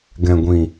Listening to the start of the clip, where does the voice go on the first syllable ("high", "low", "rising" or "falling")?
low